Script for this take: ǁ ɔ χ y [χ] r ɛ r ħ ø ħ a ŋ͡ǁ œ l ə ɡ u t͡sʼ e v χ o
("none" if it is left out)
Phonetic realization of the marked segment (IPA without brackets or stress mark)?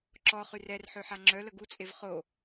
none